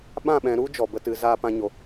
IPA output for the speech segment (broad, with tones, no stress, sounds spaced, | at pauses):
ɓ ã˦˨ ɓ ɛ̃˨ ɾ u˦ d͡ʒ ɔ˨ b ə˦ t ɨ˨˦ z aː˦ p ã˦ ɲ o˨